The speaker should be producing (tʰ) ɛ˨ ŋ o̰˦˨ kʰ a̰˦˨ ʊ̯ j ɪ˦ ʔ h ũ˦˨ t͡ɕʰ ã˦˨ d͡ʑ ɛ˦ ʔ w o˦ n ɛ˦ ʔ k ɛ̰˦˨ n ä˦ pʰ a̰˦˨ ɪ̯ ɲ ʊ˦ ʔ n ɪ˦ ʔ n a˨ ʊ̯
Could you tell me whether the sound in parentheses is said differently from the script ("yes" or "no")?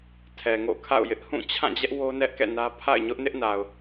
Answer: no